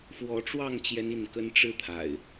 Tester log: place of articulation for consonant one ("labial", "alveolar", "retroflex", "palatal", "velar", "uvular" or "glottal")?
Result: labial